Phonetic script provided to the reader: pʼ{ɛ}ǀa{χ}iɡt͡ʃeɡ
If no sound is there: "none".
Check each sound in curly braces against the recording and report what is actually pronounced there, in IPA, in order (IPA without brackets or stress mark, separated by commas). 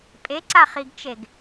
e, χ